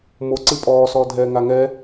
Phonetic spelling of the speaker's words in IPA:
m o ǀ ɨ pʼ ɔː s ɔː dʱ ɛː ŋ a ŋ ɛ

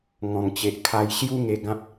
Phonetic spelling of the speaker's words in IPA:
ŋ ɔ̃˨˩ ŋ t͡ɕ e˨ ʔ kʰ a˧ j ɕ j u˦ ŋ e˧ ɡ ã˦ p̚

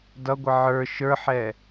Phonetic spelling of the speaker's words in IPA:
d ʌ ɡʷ ɪ ʕ ə˞ ʃ ə˞ ħ ɛ

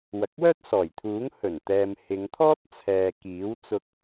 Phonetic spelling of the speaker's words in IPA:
w ɐ˨ k̚ w œː˥ t̚ s ɔː˨˩ j t̪ʰ uː˨˥ ŋ h ɵ˨˩ n t̪ ɛː˨ m h ɪ˨˧ ŋ t̪ʰ ɔː˥ t̚ t͡sʰ ɛː˨ k iː˨˥ w t͡s ʊ˧ k̚

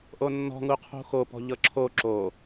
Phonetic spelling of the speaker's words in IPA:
ʔ o nː ɔ̤ ŋ u qʰ ṳ x o p ɔ̤ ʎ ɤ ǁʰ o ǁ o

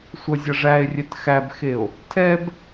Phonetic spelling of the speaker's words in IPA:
sʷ ʌ zʲ ʌ ʐ æ e̯ rʲ ɛ t x æ b x e o̯ | tʰ ɛ b

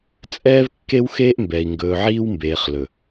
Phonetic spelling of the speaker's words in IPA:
t͡sʼ ɛː˦ v kː e˦ w x eː˦ ʔ m b ɛ˨ i̯ ŋ ɡ ɵː˨ ʕ iː˦ w m b eː˨ χ l ɵ˨

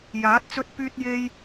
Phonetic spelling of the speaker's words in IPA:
j aː˨˥ t̚ t͡s ɵ˥ t̚ p yː˥ t̚ j e˥ j

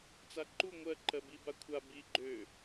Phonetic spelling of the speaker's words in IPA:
t͡s a ǃ u ŋʷ ɜ ǃ ɜ b i b a kʷʰ a b i ɡ͡ǃ ø

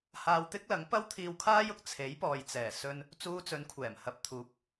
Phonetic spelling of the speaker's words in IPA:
h aː˧ w t̪ ɪ˥ k̚ l ɐ˨˥ ŋ p ɐ˥ w t̪ʰ iː˧ w kʰ aː˥ j ʊ˥ k̚ t͡sʰ e˨˥ j p ɔː˨ j t͡s ɛː˨˩ s ɵ˧ n | t͡s uː˧ t͡s ɵ˨˧ n kʷʰ ɛː˨˩ m h ɐ˨˥ p̚ t̪ʰ uː˨˥ p̚

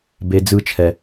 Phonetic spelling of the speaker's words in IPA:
b e˨ d͡z ɯ˧ t͡ʃʰ ɛ˨

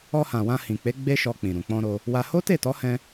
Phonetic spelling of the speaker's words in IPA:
ɔ˧ h ã˨ w ã˧ h ĩ˨ k͡p e˨˦ ɡ͡b e˦ ʃ ɔ˧ k͡p ĩ˨ ɾ ũ˨ k͡p ɔ̃˧ ɾ o˧ | w a˧ h o˦ t e˦˨ t ɔ˨˦ h ɛ̃˧

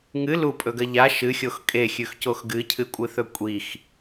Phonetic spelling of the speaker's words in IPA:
ŋ ɨ l u pʼ ɵ ɡ ɐ ʎ a ʃ ɨ xʲ o x kʼ e xʲ ʉ x c o x ɡ ɨ cʰ ɨ kʷʼ ɨ θ ɵ kʷʼ i x

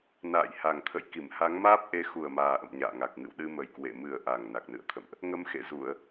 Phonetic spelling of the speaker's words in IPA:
n a̰ː˧˨ j h a˨˩ ŋ t̪ʰ ə̰˧˨ j k i˧˩ m h a˨˦ ŋ m aː˦˥ p̚ ʔ e˨˦ x u˨˩ ə̯ m aː˨˩ ʔ ə̰˧˨ m ɲ a̰ː˧˨ ŋ a˨˩ k̚ ŋ ɨ̰˧˨ w ɗ ɨ˧ m ə˨˩ j k w ḛ˧˨ m ɨ˨˩ ə̯ ʔ a˨˩ ŋ n a˨˩ k̚ n ɨ̰˧˨ ə̯ t̪ʰ ə̰˧˨ m ʔ | ŋ ə˧ m x ḛ˧˨ z u˧˩˨ ə̯

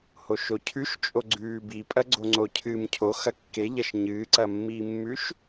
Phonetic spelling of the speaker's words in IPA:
h o ʃ o cʰ ʉ ʃ t͡ʃʼ o ɡ͡ǀ ʉː b i pʼ ɐ ɡ͡ǀ o ŋ͡ǀ o cʰ ɨː m cʰ o x ɐ kː e ʎ ɐ ʃ ɲ ɨː ǀ ɐ mː iː mː ʉ ʃ

